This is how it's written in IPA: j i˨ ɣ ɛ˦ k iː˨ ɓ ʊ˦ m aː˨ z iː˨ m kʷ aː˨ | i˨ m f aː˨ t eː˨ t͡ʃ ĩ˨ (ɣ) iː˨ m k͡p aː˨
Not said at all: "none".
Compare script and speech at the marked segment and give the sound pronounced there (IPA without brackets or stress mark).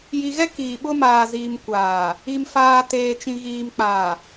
ɣ